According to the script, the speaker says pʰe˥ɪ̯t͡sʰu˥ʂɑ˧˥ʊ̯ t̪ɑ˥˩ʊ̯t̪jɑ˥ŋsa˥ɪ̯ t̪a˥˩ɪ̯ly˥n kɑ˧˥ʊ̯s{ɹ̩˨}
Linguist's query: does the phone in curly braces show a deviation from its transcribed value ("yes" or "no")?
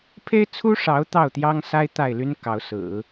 yes